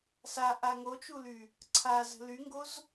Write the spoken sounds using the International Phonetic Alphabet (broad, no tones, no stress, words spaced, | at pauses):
sa ʔaŋot͡ʃuly | ǀʰazə̤ lyŋɡoz